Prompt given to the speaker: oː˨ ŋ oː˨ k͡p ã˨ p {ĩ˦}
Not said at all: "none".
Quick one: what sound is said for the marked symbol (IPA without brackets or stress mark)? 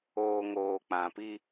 i˦